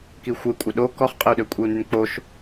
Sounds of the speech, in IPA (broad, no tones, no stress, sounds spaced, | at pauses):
k i xʷ ə i̯ kʷʼ ə ɗ o k ɔ χ qʼ ə u̯ ɗ ø kʷʼ i u̯ n y n k͡p o ʃ